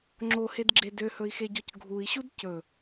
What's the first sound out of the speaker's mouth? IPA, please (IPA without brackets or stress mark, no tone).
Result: ŋ͡ǁ